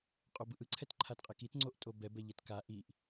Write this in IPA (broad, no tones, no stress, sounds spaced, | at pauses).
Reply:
qʼ o b ɯ ʔ ɯ ǀʰ ɛ t ǃʰ a t qʼ ɛ k i t ŋ͡ǀ o ʔ tʼ o b ɛ b ɛ ʎ ɛ t k a ʔ i ʔ